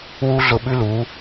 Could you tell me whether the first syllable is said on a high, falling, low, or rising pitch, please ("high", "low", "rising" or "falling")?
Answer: high